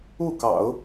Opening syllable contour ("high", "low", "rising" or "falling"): falling